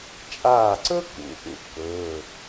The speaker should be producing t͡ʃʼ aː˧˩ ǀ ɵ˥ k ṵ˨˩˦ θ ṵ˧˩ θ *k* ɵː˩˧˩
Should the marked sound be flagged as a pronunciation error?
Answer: no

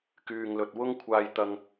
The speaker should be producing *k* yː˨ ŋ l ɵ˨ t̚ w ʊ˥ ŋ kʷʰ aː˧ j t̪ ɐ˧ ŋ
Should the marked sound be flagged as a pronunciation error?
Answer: no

